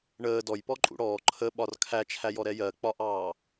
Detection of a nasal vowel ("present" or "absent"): absent